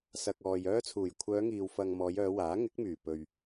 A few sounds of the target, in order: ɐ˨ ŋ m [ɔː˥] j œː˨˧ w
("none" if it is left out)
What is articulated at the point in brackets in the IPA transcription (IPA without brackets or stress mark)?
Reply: ɔː˨˧